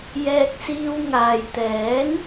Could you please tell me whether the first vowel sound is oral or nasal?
oral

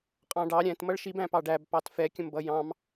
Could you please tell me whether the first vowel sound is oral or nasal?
nasal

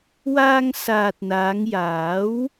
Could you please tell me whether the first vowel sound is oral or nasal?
oral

